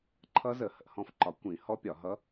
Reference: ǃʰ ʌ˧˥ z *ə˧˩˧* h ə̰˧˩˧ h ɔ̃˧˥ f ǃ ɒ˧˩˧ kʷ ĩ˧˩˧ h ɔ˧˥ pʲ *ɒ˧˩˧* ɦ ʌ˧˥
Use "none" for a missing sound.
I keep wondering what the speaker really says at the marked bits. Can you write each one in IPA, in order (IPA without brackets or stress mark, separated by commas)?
ə˧˩˧, ɒ˧˩˧